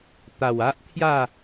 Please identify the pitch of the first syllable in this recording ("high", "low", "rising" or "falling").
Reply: low